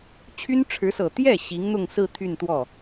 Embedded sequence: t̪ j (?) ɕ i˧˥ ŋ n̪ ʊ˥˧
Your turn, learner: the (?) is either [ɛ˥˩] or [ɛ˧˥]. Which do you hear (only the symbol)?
ɛ˥˩